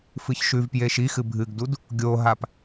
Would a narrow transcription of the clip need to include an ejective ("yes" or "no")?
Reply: no